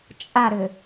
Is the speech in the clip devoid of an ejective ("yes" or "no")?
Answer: no